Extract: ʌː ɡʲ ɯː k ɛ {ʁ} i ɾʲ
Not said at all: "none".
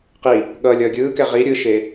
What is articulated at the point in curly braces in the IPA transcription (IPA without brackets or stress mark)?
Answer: ʁ